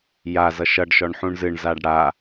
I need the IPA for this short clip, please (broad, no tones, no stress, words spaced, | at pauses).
ja zʌʃʌɖʃɔɳ ħũɳzɨɳzaɖ ɽa